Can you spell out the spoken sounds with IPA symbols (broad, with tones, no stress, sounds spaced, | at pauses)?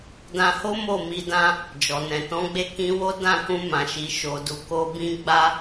d ã˧ h o˦ m o˦˨ m i˧ d ã˦ | d͡ʒ ɔ˨ n ɛ̃˨ t ɔ̃˨˦ ɡ͡b e˧ k ĩ˧ w o˦ d ã˦˨ k ũ˧ m ã˨ ʃ i˨ ʃ o˨ d u˨ k o˧ b ĩ˦ ɡ͡b a˦